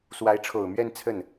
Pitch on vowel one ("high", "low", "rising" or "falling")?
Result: rising